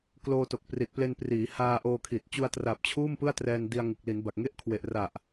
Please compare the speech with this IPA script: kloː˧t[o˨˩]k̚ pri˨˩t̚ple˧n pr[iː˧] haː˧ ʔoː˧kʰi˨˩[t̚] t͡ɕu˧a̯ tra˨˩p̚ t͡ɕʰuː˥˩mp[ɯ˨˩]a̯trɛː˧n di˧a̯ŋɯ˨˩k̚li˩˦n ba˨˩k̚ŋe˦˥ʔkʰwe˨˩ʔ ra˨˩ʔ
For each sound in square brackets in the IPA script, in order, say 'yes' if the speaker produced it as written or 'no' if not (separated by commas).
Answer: yes, no, yes, no